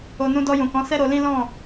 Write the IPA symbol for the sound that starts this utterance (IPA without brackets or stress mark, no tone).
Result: o